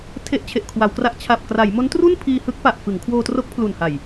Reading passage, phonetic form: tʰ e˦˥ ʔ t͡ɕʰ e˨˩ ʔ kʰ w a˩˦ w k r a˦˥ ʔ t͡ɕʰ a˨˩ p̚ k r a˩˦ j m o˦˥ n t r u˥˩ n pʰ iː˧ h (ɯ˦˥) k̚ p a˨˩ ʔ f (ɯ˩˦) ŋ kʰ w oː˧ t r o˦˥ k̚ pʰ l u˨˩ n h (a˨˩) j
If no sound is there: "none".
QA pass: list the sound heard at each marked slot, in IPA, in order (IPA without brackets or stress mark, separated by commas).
ɯ˦˥, ɯ˩˦, a˨˩